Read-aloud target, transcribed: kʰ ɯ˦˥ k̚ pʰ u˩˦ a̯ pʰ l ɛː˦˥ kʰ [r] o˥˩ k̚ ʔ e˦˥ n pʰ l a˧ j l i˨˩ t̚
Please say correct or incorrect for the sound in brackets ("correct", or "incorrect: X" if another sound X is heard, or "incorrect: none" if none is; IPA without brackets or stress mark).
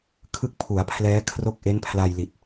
correct